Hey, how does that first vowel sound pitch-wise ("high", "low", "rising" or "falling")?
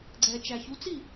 low